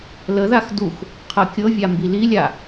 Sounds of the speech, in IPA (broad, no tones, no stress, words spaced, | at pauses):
ləðax dux | qʰɤkʲɤvʲa mbililʲa